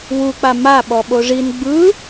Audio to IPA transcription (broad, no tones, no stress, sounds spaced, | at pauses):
w u k͡p a m a ɓ ɔ ɓ o ʐ i n ɡ͡b ɯ